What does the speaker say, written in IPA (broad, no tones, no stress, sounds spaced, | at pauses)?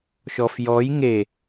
ʃ ɔ f j ɔ j ŋ e